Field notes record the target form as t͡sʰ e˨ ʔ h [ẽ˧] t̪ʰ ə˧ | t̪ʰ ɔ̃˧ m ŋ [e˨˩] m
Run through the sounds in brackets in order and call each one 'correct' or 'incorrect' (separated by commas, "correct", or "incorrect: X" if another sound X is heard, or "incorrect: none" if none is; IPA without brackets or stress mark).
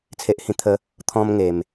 incorrect: ĩ˧, correct